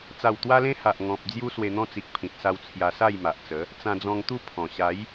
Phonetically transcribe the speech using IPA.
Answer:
t͡s a˨˩ w t̪ w a˧ l ẽ˧ h a˨ ʔ ŋ ɔ̃˨ p̚ d͡z j u˦ s w e˧ n̪ ɔ̃˦ t͡s i˨ k̚ pʰ ĩ˨ t̚ s a˧ w t͡sʰ j a˧ s a˥˧ j m a˨ ʔ t͡s ə˨˦ | t͡s ã˧ d͡z ɔ̃˧ ŋ t̪ u˥˧ pʰ ɔ̃˨˩ ɕ a˨˦ j

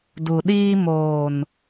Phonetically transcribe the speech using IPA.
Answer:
d u˨ ɗ iː˦ m oː˨ n

